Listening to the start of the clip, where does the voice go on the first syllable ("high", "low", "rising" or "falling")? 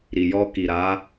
low